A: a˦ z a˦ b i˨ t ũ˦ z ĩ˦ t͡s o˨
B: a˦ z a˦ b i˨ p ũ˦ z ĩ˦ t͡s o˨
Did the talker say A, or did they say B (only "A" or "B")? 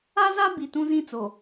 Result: A